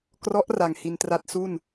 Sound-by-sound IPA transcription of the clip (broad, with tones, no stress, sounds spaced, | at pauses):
k r ɔ˦˥ ʔ r a˧ ŋ h i˧ n t r a˦˥ t̚ s u˥˩ n